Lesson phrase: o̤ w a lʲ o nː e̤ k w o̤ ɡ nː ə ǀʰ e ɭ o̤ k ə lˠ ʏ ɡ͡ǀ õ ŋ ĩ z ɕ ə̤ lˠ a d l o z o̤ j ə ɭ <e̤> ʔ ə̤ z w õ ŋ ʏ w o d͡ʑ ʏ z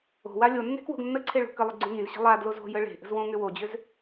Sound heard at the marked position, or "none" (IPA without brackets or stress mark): e̤